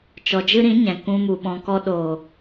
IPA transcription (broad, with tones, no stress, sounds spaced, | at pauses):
t͡ʃ ɔ˨ d͡ʒ ɨ˦ ɾ ĩ˨˦ ɲ ɛ̃˨ k ũ˧ m u˨ ɓ ɔ̃˨ k ɔ˧ ɗ oː˨